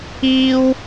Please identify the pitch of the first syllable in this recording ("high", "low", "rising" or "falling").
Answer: high